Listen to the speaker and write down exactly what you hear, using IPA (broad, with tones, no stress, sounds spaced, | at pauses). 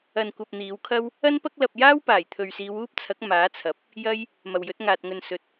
ɐ˨ n kʷ ɐ˨ p̚ n̪ iː˨˧ w kʰ ɐ˥ w | ɐ˥ n p ɐ˥ k̚ l ɐ˧ p̚ j aː˥ w p aː˨˩ j t̪ʰ ɵ˨ ɥ s iː˨˧ w uː˥ p̚ t͡sʰ ɐ˨˥ k̚ m aː˨˥ t͡sʰ ɐ˨˥ p̚ | j ɐ˥ j | m ɐ˨ w j ɵ˨˥ t̚ ŋ aː˨ t̚ ŋ ɵ˨ n s ɵ˨˥ t̚